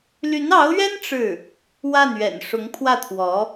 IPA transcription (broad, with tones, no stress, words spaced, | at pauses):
ly˧˥nɑ˧˥ʊ̯ɥɛ˥n ʈ͡ʂɻ̩˥˩ | wa˥˩nɥɛ̰˨˩n ʂʊ˧˥ŋpʰwä˥˩t̪ʰwɔ˧˥